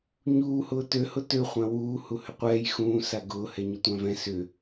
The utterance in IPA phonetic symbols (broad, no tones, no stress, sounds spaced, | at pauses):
ɲ uː h ʊː t ø h ʊ t ø χʷ ã w uː h u h ʏ qʷ ɛː j x ũː s a ɡ ʊː h ɛ ɲ ʊ tʷ ã v ɛ̃ s ʏ